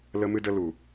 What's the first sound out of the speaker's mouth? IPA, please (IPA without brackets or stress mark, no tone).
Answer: l